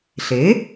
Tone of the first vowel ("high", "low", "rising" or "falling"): rising